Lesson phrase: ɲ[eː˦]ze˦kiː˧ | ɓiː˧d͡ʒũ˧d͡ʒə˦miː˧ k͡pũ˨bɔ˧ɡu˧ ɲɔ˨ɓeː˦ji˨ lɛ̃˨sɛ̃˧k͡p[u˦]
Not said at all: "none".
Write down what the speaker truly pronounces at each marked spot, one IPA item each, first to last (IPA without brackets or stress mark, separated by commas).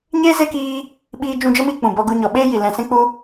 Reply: eː˦, u˧